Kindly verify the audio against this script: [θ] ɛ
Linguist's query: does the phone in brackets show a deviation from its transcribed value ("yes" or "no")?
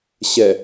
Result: yes